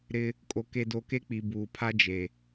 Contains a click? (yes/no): no